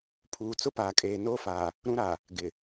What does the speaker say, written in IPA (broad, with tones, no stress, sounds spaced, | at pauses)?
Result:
pʰ uː˨ t͡s ʊ˦ p aː˨ kʼ eː˨ n oː˦ f aː˨ | ɾ ũ˦ ɾ a˨ | ɡ ɪ˨